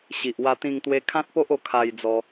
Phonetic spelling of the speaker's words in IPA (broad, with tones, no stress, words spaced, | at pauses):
ɕi˨ʔwa˧t̪ĩ˧ŋ t̪we˧kʰã˦t̚po˦ʔo˧ kʰa˧jd͡zɔ˧